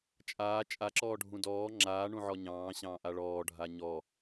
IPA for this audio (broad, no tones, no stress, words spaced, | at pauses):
t͡ʃʼaː t͡ʃʼaǁɔː ɖʱũdɔː ŋ͡ǁaːɳũʕɔ ɲɑ̃ːɕɑ̃ː ʔaɭɔːɖʱa ɲɔ